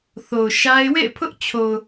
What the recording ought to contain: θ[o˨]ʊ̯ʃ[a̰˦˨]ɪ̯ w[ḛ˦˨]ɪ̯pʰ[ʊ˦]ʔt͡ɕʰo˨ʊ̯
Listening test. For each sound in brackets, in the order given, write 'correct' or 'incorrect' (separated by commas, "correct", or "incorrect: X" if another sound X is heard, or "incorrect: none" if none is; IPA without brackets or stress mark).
correct, incorrect: a˦, correct, correct